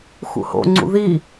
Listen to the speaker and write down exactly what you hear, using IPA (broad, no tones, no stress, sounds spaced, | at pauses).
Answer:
x ṵ h o̰ ŋ͡ǀ ṵ ð i